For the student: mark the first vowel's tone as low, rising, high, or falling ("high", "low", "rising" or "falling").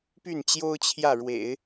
falling